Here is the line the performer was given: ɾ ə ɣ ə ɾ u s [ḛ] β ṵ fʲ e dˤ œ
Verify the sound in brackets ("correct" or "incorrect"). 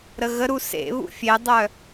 correct